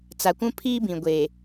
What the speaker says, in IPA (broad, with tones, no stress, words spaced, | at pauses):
t͡sa˨kʷũ˦pʰiː˦bĩ˨ ɡʷe˨